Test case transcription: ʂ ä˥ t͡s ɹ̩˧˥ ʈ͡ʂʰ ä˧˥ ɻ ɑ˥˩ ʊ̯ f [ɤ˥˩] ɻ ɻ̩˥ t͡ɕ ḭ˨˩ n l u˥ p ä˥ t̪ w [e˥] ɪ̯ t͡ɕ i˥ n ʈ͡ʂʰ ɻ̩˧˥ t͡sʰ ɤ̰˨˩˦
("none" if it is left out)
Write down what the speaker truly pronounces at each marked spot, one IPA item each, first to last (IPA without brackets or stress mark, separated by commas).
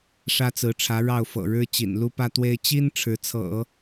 ɤ̰˨˩, e˥